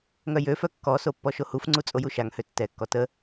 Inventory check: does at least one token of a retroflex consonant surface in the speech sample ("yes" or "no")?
no